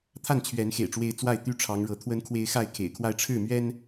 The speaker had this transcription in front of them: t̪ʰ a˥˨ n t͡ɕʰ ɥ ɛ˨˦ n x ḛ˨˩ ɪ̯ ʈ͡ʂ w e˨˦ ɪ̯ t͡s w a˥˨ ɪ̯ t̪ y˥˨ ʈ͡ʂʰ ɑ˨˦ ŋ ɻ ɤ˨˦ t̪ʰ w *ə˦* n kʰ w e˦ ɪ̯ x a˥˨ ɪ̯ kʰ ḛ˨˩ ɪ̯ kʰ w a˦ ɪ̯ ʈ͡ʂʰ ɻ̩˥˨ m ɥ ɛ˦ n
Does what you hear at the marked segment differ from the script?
no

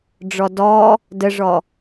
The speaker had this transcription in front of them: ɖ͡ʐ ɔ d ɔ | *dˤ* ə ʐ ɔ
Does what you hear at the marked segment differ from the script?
yes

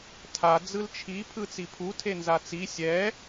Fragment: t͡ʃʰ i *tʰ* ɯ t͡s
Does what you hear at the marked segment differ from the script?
yes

